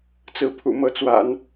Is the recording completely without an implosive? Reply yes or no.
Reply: yes